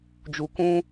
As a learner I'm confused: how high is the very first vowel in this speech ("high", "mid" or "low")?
high